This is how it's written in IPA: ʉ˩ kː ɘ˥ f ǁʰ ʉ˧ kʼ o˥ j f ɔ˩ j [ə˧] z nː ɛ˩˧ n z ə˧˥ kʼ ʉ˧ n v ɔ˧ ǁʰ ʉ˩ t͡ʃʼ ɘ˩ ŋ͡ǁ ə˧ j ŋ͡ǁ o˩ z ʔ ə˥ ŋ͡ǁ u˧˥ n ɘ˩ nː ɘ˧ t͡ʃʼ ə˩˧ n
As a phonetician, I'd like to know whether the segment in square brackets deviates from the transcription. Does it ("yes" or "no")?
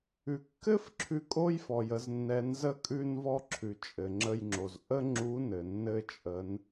yes